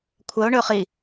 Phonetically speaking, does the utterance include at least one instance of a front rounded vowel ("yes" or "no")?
yes